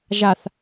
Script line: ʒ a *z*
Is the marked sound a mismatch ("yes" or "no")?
yes